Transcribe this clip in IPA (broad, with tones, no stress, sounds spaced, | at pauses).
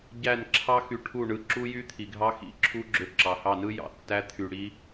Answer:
ɟ æ˦˨ n ǁʰ ɑ˦ x y˧ ʈʰ u˦˨ ɳ ɯ˧ ǁ u˦ j y˦ t̪ʰ i˨ ɡʱ ɑ˦ x ḭ˨˦ ǁʰ u˦ ɡ͡ǁ ø˧ ǁ ɑ˨ h ɑ˦˨ n ɯ˦ j ɑ̰˨ tː æ˦ t̪ʰ y˧ ɽ i˦